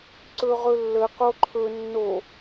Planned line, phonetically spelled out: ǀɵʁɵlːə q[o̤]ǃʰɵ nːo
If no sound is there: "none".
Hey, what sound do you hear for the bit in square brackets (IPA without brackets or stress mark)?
o